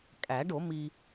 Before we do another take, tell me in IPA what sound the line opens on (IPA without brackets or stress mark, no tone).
kʼ